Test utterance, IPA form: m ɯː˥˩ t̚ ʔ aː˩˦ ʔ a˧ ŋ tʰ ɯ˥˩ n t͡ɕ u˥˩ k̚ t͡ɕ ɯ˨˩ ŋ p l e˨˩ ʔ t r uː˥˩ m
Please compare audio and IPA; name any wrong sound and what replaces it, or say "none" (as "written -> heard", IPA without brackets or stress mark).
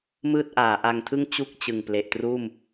n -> ŋ